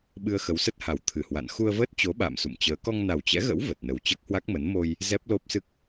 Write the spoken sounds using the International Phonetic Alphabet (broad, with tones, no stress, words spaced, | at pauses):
ɓɨ˧ə̯xə˨˦wsə˦˥t̚ha˨˩w t̪ʰɨ˧˩hwa̰˧˨n xu˧ə̯vəː˦˥t̚t͡ɕo˨˦ ɓa̰ː˧˨msṵ˧˨mt͡ɕəː˨˦ kɔ˧ŋna˨˩wt͡ɕɛ̰˧˥ɣə̰˧˥w və˨˩t̚nə˨˩w t͡ɕəː˦˥k̚hwa˦˥k̚mə˨˦n mo˧j | zɛ˦˥p̚lo˦˥p̚sɨ˦˥k̚